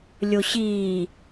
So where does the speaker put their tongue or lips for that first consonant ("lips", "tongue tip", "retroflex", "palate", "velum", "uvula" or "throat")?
tongue tip